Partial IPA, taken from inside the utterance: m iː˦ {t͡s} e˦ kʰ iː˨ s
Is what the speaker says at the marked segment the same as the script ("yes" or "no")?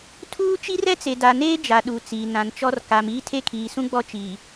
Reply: no